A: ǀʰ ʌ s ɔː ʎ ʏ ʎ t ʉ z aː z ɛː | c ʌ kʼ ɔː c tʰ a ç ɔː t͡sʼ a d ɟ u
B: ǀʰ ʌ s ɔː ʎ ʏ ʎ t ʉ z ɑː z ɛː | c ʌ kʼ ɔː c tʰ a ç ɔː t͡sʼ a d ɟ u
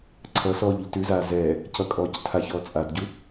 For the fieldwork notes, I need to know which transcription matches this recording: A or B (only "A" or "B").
A